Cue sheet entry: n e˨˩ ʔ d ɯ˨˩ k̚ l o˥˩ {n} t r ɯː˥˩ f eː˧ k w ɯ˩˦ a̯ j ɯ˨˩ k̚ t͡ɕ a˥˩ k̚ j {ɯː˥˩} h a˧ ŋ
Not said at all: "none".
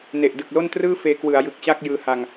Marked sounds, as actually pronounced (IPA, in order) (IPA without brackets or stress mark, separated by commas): n, ɯː˧